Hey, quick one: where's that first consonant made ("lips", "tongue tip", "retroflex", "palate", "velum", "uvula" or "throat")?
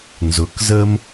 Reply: tongue tip